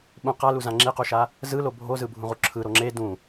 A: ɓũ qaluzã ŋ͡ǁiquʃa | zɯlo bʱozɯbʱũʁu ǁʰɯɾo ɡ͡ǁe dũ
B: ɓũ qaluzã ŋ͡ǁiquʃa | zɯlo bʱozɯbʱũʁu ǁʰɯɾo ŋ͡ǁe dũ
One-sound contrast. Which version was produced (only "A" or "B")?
B